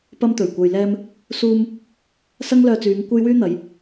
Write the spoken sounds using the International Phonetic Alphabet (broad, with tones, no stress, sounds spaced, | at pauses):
p ɐ˧ m t̪ ɵ˨˩ ɥ kʷ ɐ˨ j l ɛː˧ m | s uː˧ m | s ɐ˥ ŋ l œː˧ t͡s yː˨˧ ŋ kʷ ɐ˥ j w yː˥ n̪ ɐ˨˧ j